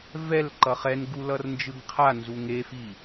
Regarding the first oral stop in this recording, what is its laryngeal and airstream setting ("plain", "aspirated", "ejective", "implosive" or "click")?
click